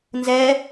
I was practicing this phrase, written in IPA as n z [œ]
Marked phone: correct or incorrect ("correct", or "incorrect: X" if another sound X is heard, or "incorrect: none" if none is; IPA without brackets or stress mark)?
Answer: incorrect: ɛ